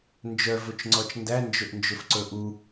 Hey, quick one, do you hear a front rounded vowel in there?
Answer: yes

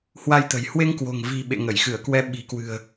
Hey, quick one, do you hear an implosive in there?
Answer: yes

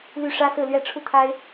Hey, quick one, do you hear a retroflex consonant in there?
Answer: yes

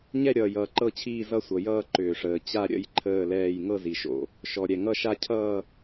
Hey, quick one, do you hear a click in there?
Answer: yes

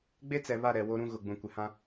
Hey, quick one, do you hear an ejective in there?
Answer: no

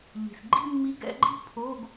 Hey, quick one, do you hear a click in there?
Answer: yes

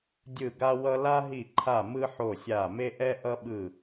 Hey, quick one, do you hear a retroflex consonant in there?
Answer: no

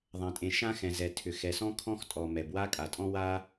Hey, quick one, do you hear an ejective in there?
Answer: yes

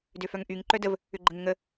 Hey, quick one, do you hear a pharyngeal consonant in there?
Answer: no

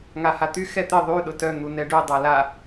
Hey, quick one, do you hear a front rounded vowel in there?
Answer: yes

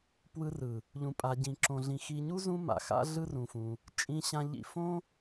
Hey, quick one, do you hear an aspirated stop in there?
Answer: no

